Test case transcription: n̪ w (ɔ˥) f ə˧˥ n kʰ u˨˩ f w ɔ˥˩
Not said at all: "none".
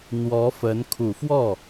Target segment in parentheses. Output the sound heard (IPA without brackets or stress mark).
ɔ˧˥